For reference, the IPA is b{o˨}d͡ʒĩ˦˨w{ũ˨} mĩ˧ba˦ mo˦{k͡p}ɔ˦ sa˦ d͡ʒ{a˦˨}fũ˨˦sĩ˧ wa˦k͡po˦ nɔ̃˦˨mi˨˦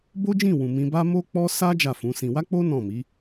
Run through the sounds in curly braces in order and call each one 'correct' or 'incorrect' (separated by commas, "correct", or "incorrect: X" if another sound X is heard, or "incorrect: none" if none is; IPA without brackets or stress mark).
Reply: incorrect: o˦, correct, correct, correct